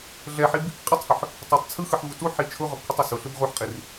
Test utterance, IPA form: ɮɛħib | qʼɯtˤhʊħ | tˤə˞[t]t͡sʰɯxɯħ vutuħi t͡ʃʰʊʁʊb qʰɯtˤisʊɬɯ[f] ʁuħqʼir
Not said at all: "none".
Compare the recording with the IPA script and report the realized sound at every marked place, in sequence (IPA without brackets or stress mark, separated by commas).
tˤ, b